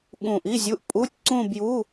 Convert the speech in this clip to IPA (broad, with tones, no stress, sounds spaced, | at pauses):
ɠ ũ˧˩ ʔ i˧˥˧ zʲ u˧˥˧ ʔ pʼ u˧˥˧ tʲ ǀ ũ˥˧ b j u˧˥˧